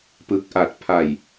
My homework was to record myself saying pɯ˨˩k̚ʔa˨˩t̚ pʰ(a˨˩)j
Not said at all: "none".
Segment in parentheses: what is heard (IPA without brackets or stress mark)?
a˨˩